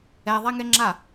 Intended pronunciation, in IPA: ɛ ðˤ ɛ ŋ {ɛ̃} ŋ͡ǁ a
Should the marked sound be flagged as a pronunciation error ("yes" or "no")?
yes